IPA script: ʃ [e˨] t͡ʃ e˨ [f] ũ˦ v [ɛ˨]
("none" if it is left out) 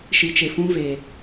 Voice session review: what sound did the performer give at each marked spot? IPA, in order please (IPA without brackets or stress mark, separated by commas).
i˨, f, e˨